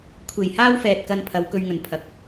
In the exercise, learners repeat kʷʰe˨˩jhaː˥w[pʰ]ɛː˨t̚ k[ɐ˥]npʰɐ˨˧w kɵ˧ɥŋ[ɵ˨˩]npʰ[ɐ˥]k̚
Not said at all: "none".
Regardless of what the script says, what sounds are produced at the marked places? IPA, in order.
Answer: f, ɐ˧, ɵ˨˩, ɐ˨˥

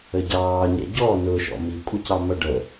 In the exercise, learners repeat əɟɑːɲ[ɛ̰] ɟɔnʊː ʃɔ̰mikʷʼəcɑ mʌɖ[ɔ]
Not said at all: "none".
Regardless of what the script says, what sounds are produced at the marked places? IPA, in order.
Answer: ɛ̰, ə

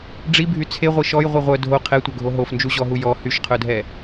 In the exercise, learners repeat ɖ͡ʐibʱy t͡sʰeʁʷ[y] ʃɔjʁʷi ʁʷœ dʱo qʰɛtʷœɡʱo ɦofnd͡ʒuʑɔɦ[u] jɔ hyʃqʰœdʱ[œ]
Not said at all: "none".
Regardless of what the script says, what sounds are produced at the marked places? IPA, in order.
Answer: i, u, ɛ

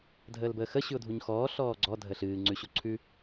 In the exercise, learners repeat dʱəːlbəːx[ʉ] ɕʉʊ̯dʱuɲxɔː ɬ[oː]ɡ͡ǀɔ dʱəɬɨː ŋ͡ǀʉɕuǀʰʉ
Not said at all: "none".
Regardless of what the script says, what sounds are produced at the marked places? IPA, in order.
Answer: ə, ɔː

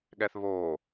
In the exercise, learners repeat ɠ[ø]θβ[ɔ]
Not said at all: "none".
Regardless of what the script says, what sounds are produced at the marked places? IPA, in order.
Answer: ɛ, o

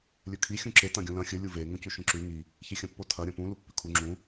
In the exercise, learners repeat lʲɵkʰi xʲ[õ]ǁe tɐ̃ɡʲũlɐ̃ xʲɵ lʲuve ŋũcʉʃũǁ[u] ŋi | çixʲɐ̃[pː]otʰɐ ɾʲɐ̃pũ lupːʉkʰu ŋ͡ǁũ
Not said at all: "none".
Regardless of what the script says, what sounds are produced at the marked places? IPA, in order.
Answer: ũ, ʉ, pː

